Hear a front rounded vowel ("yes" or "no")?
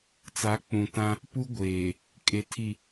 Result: no